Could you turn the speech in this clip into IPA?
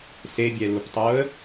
s e bʲ ɛ l u p tˤ o ə̯

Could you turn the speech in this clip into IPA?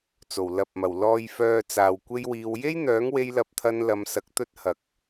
t͡s o˨˩ w l ɐ˨ p̚ m ɐ˨˩ w l ɔː˨ j f œː˨ t͡s aː˨ w kʷ e˥ j w iː˧ w j e˥ j n̪ œː˨˥ ŋ w e˧ j l ɐ˨˥ p̚ t̪ʰ ɐ˧ n l ɐ˨˧ m s ɐ˨˥ k̚ t̪ ɵ˥ t̚ h ɐ˨ k̚

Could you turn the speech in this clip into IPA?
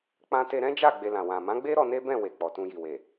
k͡p ã˧ t e˧ ɾ ɛ̃˦ d͡ʒ a˦˨ ɡ͡b e˧ l ã˨ w ã˨ m ã˨˦ ɡ͡b e˦ ɾ ɔ˧ n e˦ b ɛ̃˦˨ w e˨ k͡p ɔ˨ t ũ˧ j i˨ w e˨

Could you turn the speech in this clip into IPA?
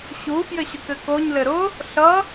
ɕ u f j ɘ ɕ ʊ k ɘ k o ɲ l ɘ ɾ ʊ | ɬ ʌ

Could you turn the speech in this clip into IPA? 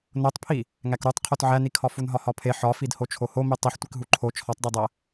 n o tˤ pʰ i | ŋ æ k ɾ u tˤ qʰ o t ʕ æ n i kʰ ɒ f u n ɦ ɒ h ɒ pʰ e ħ ɒ f i d h o t͡ʃʰ o h o m i tˤ i ħ tʷ i k ɦ u ǃʰ o t͡ʃʰ ɒ tˤ d e dˤ æ

